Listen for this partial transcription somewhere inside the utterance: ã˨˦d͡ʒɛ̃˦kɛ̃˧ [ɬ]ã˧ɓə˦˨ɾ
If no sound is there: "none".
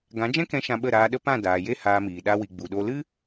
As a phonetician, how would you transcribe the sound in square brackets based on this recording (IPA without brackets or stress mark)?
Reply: ʃ